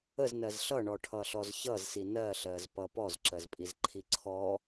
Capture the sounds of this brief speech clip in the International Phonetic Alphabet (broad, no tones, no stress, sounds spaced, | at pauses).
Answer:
ə z n ɜ z ɬ ʌ ɳ ɔ ʈʰ ʌ ɬ ɔ z ç ʌ z s i n ɜ ɬ ɜ z p ʌ p ɔ z ǁ ɜ z pʼ i z ǃʰ i ǀʰ ɔ